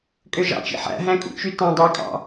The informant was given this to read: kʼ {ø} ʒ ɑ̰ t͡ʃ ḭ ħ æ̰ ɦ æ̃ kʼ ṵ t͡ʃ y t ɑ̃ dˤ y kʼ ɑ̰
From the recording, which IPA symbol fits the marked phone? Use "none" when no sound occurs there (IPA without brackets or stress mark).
ø